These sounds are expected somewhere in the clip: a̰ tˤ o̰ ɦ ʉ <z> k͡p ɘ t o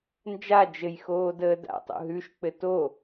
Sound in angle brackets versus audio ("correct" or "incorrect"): incorrect